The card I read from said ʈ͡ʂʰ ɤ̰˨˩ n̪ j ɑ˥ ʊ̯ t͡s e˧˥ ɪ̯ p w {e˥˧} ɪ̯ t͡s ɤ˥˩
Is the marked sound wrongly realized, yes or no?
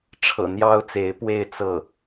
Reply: no